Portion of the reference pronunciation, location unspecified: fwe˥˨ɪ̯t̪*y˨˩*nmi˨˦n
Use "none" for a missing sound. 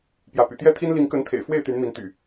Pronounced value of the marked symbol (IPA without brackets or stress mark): y˨˦